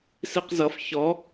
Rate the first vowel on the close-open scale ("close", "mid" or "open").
close